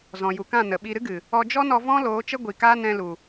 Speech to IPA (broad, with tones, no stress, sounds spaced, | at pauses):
z ɔ̃˨ j u˨ k ã˦˨ n ə˨ ɓ i˧ ɾ ɨ˦ ɡ ɨ˨ | ɔ˧ d͡ʒ ɔ˦ n ɔ˧ v ɔ̃˦ l oː˨˦ t͡ʃ ə˦ ɡʷ i˨ k aː˦ n ɛ̃˧ l u˨